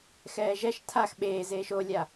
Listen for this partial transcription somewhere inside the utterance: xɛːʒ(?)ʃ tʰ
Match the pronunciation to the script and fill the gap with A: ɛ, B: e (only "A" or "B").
A